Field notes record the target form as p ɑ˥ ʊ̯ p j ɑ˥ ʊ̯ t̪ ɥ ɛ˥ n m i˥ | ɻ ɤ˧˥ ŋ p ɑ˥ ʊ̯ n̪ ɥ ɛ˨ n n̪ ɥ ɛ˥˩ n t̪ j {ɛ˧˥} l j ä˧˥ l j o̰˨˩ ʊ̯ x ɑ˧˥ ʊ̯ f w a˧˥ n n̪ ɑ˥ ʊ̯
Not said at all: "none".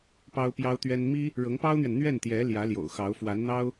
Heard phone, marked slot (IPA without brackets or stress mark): ɛ˧˥